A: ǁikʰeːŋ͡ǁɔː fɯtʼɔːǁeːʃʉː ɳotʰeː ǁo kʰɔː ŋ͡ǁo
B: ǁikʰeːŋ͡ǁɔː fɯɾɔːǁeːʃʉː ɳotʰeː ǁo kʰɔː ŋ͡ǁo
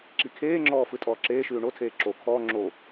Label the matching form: A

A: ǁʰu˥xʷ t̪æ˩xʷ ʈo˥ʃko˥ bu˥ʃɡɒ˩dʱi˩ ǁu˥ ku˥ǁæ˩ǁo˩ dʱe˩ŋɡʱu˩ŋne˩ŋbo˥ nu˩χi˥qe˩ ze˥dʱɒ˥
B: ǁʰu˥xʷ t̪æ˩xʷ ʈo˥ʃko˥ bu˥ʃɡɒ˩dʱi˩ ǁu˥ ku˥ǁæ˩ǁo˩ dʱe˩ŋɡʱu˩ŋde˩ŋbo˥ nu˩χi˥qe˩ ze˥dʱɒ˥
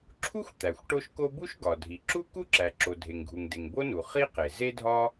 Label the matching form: B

